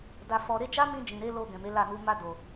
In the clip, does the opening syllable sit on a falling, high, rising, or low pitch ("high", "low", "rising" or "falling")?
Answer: low